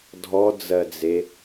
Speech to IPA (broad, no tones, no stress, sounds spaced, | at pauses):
dʱ ɔ d͡z ɜ d͡z e